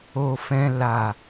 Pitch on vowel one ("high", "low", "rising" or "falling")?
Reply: low